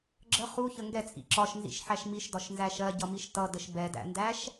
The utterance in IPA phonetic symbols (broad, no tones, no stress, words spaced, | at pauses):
ɡ͡ǁə χuçə ŋɡɛt͡sʼḭ ǁɒʃnzḭʃħæʃ miʃdɒʃnzæ ʃɜɟʌmiʃ tʌdəʃ bɛdæ̰ndæʃ